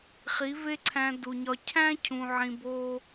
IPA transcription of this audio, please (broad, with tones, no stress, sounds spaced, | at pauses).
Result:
χ i˨˦ v e˦ ǀʰ æ̃˧ d u˨ ɲ ɒ˧ cʰ æ̃˦ cʰ ũ˨ ʕ ĩ˨ b o˦